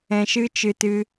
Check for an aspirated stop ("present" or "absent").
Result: absent